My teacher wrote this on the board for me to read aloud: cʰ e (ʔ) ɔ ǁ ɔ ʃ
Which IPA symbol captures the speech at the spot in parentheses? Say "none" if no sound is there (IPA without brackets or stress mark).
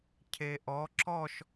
ʔ